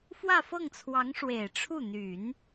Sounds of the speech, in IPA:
f w ä˥˧ f ɤ˥˩ ŋ t͡sʰ w ɑ˧˥ ŋ ʂ w e˨˩ ɪ̯ ʈ͡ʂʰ u˥˩ n̪ y˨˩˦ n

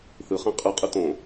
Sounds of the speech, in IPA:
θ ɯ χ ɛ̃ qʼ ɯ qʼ ɯ t õ

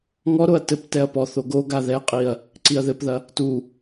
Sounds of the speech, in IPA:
ŋ ɔ ɾ o ɐ̯ t ɘ p t ɛ ɐ̯ p ɔ θ o ɡ o ɡ a ð ɛ qʼ i ɐ̯ | ǀ i ɐ̯ ð ɘ p ð ɐ | t u

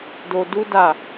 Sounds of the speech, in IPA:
d o˧ d u˦ d a˦˨

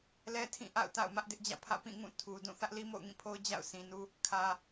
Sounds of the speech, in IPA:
l ɛ˦ tʰ ĩ˦˨ ʔ a̰˦˨ ʊ̯ t a̰˦˨ ʊ̯ m ä˦ ʔ d ɪ˦ ʔ d͡ʑ ä̰˦˨ pʰ ä̰˦˨ p ĩ˦˨ ŋ ũ˦˨ tʰ u˨ d ũ˦˨ θ ä˦ ʔ l i˦ m o̰˦˨ ʊ̯ ŋ ĩ˦˨ pʰ o˦ ʊ̯ d͡ʑ a̰˦˨ ʊ̯ s ĩ˨ n u˦ | kʰ ä˦

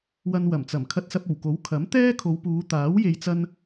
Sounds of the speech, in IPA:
w ɐ˧ n w ɐ˨˩ m t͡s ɐ˨˩ m kʰ ɐ˧ t̚ s ɐ˧ p̚ o˨˩ w k o˨˥ w kʰ ɐ˨˥ m t̪ ɛː˥ kʰ o˨˧ w p uː˨˧ t̪ aː˨˥ w j e˧ j t͡s ɐ˥ n

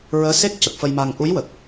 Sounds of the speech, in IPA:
ɹ əː˧˥ s e˦˥ k̚ c ə˨˩ k̚ f ə˧ j m a˧ ŋ ʔ u˧˥ j w ə˨˩ k̚

